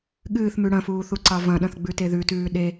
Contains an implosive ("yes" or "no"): yes